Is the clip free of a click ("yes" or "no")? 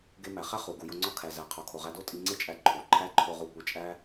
no